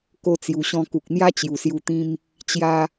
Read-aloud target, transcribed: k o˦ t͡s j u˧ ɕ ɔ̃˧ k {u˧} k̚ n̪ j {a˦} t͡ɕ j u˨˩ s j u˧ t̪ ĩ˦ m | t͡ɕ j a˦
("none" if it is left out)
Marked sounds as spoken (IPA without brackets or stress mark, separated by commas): u˨, a˦